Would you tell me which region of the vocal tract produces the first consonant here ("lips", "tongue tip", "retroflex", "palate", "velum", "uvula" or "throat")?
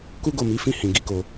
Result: velum